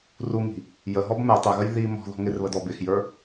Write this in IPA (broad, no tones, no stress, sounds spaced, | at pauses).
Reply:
r u ŋ i̤ | j ə ɦ ɔ b m ɛ tˤ ɪ ɣ ə j ð i m ɔ̤ ð ɔ̤ ŋ ɪ r β ə d ɔ b ɪ x j ə˞